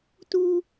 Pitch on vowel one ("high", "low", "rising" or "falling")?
low